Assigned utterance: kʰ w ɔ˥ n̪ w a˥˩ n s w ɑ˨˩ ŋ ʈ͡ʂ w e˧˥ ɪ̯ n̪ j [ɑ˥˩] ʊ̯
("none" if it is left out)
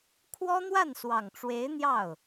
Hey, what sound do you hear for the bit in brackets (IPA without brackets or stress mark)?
ɑ˥˩